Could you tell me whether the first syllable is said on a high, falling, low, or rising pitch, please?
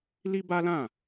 high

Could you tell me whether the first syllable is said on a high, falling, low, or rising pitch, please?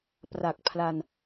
low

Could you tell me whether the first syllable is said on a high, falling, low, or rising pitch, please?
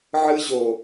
high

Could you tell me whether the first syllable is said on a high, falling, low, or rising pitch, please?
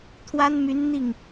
high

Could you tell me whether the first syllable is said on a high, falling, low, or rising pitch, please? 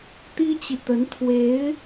high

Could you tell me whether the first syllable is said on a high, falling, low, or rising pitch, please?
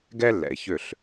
high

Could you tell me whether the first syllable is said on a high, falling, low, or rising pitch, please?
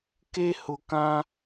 high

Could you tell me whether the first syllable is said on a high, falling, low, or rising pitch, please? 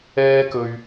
high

